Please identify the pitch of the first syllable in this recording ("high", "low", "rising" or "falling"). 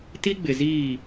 high